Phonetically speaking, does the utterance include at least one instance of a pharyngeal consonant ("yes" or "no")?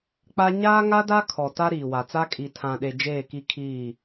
no